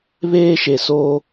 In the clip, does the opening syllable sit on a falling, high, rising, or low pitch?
high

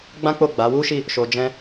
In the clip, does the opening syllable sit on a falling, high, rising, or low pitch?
high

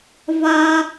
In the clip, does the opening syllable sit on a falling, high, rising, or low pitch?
high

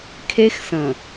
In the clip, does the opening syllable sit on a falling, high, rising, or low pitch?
high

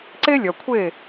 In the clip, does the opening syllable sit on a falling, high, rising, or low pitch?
high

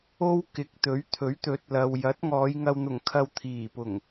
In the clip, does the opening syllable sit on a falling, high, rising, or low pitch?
high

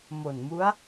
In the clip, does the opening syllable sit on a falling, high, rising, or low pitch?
low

